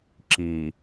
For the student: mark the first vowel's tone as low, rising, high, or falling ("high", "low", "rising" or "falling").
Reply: low